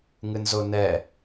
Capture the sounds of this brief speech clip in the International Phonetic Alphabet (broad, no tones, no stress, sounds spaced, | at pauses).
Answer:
ŋ ɨ n z o n ɛ